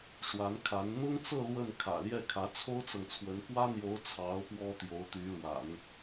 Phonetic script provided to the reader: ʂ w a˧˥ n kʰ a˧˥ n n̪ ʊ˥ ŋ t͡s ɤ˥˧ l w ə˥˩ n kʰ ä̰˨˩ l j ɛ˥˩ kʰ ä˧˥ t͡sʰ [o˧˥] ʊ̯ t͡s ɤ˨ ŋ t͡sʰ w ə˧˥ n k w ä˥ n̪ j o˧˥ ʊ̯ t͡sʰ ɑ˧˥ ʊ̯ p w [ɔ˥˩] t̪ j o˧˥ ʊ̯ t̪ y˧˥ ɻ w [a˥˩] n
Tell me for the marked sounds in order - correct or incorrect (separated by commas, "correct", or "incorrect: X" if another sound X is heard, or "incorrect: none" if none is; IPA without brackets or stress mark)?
incorrect: o˥, incorrect: ɔ˥, incorrect: a̰˨˩˦